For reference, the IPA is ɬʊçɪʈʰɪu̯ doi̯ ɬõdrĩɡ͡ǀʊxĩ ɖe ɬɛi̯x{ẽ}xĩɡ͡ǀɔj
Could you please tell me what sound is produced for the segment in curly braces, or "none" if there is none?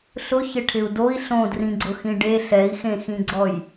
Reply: ẽ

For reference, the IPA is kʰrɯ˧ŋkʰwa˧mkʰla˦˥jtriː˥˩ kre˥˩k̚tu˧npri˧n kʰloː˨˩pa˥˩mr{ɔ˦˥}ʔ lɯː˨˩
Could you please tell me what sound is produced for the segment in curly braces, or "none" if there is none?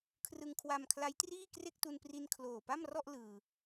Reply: ɔ˥˩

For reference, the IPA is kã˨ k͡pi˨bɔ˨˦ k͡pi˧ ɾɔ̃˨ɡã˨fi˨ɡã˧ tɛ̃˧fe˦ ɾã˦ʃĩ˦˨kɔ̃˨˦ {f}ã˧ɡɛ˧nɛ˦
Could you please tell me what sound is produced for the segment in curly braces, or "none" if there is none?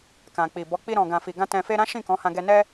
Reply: h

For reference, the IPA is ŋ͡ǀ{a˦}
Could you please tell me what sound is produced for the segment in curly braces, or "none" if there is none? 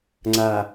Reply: a˨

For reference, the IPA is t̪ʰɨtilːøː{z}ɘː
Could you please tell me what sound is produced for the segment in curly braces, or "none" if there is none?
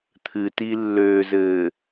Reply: z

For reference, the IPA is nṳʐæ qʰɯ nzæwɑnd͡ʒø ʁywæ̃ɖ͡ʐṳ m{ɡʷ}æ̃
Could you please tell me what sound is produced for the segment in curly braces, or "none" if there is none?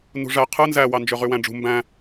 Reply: b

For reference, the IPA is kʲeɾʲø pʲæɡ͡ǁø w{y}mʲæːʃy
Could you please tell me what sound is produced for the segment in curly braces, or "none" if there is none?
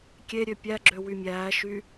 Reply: y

